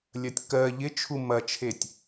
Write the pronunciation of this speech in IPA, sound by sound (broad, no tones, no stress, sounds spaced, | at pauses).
lʲ ɐ tʲ k ɜ ʎ ɪ t͡ʃʰ u m ɐ t͡ʃʰ e tʲ